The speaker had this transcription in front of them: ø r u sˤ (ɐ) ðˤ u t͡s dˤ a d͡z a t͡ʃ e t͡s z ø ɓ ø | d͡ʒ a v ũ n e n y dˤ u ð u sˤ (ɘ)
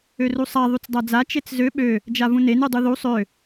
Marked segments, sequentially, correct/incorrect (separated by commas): incorrect, incorrect